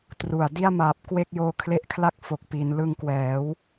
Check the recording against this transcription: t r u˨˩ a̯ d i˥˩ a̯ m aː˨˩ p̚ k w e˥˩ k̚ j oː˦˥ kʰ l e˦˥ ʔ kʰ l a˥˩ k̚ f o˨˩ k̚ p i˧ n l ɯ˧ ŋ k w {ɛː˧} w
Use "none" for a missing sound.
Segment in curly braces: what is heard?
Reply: ɛː˩˦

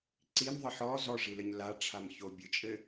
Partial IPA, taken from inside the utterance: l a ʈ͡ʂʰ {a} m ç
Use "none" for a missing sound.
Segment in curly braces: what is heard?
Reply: a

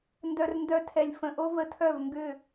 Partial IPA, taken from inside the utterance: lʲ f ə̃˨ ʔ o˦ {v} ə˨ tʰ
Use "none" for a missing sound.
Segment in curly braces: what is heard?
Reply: v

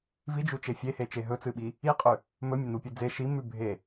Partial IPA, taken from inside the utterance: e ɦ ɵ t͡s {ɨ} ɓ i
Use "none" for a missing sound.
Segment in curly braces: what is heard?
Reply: ɨ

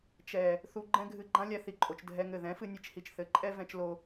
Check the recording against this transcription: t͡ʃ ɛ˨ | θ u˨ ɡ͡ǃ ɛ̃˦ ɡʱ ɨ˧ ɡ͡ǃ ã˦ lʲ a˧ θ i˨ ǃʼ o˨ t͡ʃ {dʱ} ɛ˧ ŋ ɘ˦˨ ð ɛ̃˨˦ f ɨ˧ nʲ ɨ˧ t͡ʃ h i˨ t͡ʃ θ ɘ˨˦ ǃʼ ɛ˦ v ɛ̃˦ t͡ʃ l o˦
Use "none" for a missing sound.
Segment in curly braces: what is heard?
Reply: dʱ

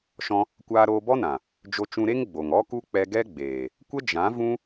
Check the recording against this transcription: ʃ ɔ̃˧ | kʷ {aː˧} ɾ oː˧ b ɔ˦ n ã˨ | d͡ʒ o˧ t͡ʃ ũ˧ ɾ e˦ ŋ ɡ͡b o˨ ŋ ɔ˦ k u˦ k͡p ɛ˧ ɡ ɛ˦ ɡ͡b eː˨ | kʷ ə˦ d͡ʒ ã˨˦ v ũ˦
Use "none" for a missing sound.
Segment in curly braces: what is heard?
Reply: aː˧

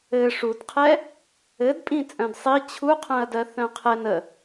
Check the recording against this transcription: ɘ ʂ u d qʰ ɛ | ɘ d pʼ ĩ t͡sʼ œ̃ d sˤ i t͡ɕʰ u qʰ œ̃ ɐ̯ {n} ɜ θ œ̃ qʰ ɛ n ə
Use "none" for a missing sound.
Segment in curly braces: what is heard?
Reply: d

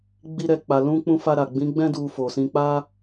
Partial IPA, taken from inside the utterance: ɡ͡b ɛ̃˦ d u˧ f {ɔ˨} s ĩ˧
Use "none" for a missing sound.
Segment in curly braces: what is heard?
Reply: o˨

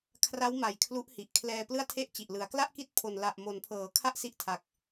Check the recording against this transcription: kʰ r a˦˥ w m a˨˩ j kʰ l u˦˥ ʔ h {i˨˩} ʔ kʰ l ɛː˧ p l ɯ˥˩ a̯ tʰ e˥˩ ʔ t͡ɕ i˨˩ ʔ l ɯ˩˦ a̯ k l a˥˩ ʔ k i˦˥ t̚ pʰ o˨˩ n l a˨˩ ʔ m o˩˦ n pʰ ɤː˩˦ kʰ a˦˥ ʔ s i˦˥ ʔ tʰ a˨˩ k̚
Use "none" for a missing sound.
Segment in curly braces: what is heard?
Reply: i˨˩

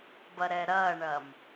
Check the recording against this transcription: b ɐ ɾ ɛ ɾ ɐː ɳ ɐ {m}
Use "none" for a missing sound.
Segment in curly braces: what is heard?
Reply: m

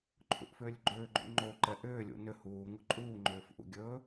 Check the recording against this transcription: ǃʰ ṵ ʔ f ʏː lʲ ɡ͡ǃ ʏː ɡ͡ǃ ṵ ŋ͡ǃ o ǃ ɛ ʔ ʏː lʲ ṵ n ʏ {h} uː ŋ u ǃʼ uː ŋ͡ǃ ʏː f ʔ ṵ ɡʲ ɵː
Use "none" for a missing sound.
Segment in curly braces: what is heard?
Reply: h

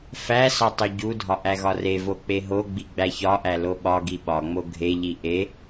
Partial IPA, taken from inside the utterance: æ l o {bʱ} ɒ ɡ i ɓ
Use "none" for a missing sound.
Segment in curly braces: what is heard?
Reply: ɓ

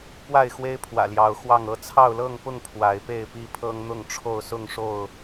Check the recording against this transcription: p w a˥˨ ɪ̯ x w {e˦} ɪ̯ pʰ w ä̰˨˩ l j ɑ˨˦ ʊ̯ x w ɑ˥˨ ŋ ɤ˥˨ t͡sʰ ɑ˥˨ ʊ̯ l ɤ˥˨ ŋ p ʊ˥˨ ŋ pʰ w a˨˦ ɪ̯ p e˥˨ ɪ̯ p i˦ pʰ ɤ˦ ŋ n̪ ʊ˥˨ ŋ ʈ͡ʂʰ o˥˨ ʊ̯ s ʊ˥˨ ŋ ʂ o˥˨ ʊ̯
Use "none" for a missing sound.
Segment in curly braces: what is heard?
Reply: e˦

